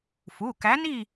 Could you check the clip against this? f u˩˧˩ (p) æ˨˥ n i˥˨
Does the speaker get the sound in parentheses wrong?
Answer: yes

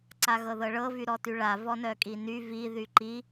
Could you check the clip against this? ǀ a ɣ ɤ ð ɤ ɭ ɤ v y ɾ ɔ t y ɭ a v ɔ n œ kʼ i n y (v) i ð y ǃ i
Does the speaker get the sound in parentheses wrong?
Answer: no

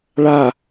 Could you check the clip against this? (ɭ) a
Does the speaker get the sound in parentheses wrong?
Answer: no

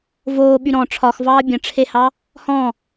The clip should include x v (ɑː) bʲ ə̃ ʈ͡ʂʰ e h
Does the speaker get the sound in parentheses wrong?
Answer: no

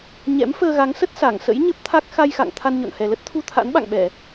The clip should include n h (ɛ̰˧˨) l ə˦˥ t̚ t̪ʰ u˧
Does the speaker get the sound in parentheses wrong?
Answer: yes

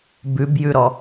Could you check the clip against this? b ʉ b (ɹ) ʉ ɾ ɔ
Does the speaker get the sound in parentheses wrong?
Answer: yes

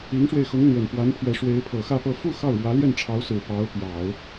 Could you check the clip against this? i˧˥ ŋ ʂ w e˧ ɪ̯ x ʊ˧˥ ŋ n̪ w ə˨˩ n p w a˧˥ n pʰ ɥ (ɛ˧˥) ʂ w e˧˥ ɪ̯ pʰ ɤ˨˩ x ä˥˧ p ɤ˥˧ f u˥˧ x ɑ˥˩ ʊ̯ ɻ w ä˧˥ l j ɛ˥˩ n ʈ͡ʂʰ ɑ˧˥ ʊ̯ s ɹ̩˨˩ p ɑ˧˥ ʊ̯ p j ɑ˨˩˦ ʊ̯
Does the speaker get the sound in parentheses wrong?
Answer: no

